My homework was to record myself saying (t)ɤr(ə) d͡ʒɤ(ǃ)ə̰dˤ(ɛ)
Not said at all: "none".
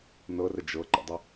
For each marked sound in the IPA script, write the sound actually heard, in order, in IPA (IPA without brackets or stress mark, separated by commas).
n, ə, ǃ, ə